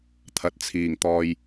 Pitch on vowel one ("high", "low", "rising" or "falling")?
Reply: low